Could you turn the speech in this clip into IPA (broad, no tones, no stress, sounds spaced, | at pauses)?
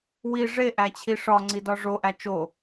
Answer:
w i ʐ e ʔ æ t͡ɕʰ i ʂ ɒ ŋ͡ǀ i d ɒ ʐ o ʔ æ t͡ʃ o